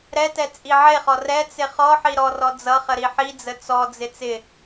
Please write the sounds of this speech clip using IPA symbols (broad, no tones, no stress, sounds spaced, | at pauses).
ɾ ɛ t ɛ t͡sʼ i ʕ e χ ɔ r ɛ t͡s ɪ χ ɔ ħ i ɾ ɔ r ɔ d͡z ʌ χ ə ɾ i ħ i d͡z ə t͡s ɔ d͡z ɪ t͡s ɪ